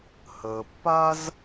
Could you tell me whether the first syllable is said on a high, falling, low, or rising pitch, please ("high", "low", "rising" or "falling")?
low